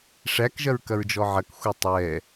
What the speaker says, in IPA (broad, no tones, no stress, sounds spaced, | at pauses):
ʂ æ k ʒ ɐ ɹ k ɐ ɹ d͡ʒ ɔ ʕ ɐ k xʷ ɛ tˤ ɛ